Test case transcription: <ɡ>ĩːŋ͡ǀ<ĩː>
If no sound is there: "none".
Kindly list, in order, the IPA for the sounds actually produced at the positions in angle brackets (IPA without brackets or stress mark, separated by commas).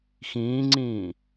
x, ĩː